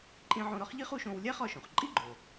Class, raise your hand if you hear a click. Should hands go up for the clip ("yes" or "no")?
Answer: yes